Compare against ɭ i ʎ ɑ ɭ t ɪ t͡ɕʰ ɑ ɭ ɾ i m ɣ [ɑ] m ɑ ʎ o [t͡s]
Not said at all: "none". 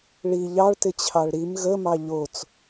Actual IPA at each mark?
ə, t͡s

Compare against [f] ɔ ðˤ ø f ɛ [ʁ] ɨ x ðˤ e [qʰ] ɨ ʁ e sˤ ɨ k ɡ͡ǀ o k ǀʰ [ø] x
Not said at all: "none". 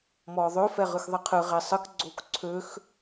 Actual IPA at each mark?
m, ʁ, qʰ, ø

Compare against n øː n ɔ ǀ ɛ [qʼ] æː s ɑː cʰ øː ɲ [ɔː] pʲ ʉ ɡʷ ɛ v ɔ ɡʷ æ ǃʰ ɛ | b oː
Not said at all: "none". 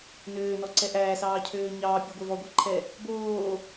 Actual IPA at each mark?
ʔ, ɑː

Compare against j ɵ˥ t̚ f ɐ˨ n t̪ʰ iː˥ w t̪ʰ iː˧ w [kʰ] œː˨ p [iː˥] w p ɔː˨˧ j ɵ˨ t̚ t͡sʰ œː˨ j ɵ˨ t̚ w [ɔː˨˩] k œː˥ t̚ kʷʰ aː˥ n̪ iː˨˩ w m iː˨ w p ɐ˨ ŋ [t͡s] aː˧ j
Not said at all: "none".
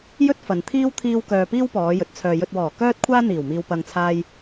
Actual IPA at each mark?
k, iː˥, ɔː˨˩, t͡sʰ

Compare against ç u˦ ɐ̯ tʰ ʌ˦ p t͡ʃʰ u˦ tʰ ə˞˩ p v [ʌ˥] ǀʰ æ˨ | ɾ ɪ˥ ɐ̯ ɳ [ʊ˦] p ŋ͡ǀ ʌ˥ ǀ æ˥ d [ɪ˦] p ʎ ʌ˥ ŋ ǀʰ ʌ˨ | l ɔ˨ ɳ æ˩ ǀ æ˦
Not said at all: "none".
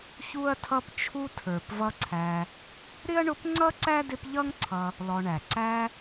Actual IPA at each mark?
ʌ˦, ʊ˦, ɪ˦

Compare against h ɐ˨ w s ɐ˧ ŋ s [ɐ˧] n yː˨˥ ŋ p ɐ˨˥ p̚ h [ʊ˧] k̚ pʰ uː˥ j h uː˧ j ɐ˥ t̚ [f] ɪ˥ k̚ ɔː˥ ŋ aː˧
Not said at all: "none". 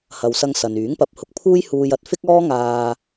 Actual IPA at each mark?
ɐ˨, ʊ˧, f

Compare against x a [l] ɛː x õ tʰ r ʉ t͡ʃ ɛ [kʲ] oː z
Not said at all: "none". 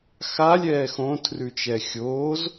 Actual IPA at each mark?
lʲ, xʲ

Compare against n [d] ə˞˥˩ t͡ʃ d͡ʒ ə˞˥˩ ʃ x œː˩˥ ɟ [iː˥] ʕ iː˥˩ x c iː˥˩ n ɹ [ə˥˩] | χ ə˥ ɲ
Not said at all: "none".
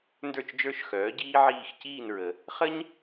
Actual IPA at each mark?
d, iː˥, ə˩

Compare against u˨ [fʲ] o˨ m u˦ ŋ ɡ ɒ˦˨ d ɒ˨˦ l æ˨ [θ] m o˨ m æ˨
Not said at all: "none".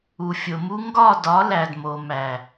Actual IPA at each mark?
fʲ, d

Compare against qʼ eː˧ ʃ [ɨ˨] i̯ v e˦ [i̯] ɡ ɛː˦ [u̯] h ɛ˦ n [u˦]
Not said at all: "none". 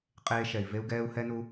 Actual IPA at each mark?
ɛ˨, u̯, u̯, u˦

